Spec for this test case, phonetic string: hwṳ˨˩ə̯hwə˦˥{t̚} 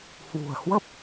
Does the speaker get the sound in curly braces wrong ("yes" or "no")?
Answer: yes